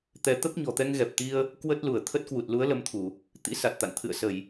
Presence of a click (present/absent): absent